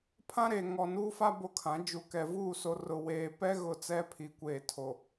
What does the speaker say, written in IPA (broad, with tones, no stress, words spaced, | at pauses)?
pʰã˦ɾe˨ŋɔ˨ nuː˦fa˦ bo˦kʰã˨˦ d͡ʒu˨kɛ˨ vuː˦˨so˨rʊ˨weː˨ pɛ˦ɣʊ˨ t͡sɛ˦pʰi˨kʷeː˨tʰo˨